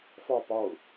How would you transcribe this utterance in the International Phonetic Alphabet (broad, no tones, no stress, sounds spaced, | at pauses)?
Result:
f ɒ p ɒ ʊ̯